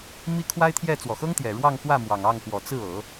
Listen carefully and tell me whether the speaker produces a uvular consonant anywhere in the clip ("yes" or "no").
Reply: no